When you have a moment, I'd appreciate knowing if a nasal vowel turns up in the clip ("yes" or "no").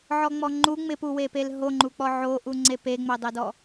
no